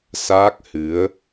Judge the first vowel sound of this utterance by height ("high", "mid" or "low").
low